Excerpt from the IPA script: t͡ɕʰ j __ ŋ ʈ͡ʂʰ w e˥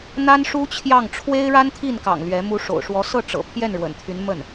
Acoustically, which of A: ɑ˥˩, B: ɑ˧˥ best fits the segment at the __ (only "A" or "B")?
A